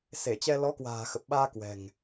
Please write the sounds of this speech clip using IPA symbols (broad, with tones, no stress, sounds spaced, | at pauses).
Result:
s e˧˩ t͡ɕ ɛ˧ l ɔ˨˦ k w a̤ː˨˩ x ə˨˩ p̚ ɓ aː˧ k w ɛ̤˨˩ ŋ